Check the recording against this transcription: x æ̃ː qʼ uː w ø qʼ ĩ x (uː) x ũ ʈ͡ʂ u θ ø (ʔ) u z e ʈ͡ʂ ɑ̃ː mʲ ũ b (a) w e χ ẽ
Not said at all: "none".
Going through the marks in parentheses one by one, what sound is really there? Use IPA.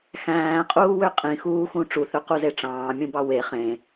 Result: uː, q, ɑ

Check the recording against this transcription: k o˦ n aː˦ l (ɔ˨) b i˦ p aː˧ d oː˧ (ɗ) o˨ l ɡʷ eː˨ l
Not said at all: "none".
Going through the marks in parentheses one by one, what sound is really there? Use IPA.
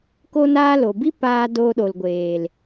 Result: o˨, ɗ

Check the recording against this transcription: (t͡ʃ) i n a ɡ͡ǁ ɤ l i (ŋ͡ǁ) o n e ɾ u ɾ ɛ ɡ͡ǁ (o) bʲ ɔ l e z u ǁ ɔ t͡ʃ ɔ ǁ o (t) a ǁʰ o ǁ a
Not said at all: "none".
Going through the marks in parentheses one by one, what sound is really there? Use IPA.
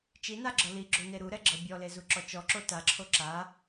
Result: t͡ʃ, ɡ͡ǁ, ɤ, t

